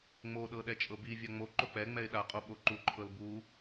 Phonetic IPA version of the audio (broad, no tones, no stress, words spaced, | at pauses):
ŋ͡moɗɤ ɗɛt͡ʃʼɤbivʲa ŋ͡mo ǃok͡pɛŋ͡mɛɪ̯ ɗaqʼo ɓoǃuǃʰɤl bu